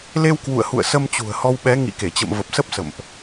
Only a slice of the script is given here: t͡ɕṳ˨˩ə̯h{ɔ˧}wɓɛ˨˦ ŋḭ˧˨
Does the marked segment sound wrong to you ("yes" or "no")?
no